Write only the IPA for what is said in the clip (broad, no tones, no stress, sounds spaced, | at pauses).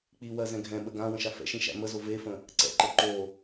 k͡p i w ɜ z ɛ̃ ɡʱ ɛ̃ ɓ ə ɡ ã w ə̃ ʃ a f ɛ̰ ʃ ĩ ʃ æ̰ m ə z o v e f ə̃ | ǀ ɛ̰ ǃ ə ǃ o